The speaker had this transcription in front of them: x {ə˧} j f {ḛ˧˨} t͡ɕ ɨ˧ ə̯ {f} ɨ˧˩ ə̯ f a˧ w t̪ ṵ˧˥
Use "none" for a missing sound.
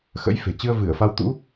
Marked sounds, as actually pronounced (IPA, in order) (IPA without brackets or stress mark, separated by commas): ə̰˧˥, e̤˨˩, v